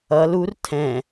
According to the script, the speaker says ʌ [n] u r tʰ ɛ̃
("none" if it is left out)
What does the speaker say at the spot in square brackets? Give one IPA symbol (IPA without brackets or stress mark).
l